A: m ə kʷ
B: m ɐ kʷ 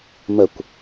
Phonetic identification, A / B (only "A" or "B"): A